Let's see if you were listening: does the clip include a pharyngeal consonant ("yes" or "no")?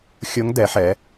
yes